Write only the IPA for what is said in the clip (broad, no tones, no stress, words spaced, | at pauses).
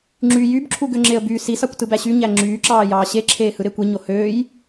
ŋ͡ǁy jybǁʰuɡøŋ͡ǁeə̯ by sisɑkʷtɯbæ ɕyɲæ ŋ͡ǁyːǁɑːjɑː ɕeǁʰeː hɯɾekʷiɲo høːj